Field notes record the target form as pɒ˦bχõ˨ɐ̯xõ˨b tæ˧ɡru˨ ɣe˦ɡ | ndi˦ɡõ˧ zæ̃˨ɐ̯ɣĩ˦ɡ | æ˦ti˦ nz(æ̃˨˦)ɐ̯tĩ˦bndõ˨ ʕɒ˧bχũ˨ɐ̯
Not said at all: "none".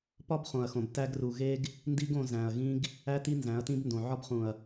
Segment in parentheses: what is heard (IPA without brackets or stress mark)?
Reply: æ̃˨˦